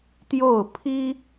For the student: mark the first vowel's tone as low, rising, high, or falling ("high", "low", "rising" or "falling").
falling